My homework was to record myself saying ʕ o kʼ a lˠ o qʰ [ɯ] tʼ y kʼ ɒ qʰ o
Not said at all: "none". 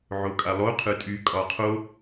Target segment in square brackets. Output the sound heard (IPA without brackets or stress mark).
ɯ